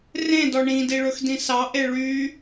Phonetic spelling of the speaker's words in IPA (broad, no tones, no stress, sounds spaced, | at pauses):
r ẽ d ɔ ɳ ĩ d i ɭ ɵ x d ĩ s ɑ ʔ e ɭ y